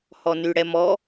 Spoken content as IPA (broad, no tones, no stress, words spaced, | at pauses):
hɔnyɽɛmɔ